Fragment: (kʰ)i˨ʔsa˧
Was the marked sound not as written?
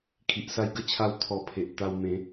no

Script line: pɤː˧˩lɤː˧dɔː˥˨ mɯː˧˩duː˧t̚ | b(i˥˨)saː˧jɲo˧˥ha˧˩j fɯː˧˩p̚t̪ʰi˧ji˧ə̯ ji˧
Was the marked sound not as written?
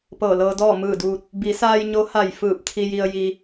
yes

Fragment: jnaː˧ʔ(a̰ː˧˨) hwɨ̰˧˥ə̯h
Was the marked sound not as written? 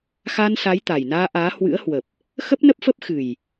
yes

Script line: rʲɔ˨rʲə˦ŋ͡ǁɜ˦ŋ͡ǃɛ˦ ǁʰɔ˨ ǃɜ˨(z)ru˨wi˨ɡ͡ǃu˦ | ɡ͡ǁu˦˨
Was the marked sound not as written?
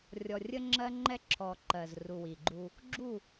no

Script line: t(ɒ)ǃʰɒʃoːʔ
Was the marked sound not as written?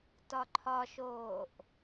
no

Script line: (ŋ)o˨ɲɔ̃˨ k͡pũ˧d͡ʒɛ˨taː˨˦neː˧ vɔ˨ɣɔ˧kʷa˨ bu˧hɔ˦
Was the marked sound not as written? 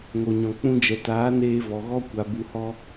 no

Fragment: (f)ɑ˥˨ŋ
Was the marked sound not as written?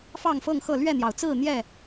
no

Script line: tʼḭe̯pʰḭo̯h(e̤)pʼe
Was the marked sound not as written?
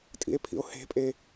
no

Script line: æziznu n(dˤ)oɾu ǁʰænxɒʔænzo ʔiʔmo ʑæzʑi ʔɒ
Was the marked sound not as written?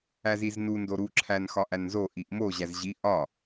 yes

